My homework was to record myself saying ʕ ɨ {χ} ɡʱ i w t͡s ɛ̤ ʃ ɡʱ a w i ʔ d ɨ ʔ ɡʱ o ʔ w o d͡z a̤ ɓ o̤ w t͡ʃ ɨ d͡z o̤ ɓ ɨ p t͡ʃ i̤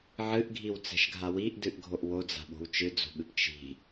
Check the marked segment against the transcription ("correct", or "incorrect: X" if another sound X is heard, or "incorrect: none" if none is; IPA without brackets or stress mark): incorrect: ʔ